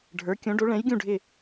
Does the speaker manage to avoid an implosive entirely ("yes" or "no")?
yes